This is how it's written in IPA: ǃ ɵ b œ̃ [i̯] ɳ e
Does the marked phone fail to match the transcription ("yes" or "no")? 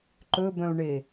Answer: yes